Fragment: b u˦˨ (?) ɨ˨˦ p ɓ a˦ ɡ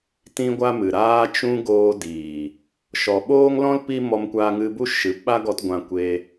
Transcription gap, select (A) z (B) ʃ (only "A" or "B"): B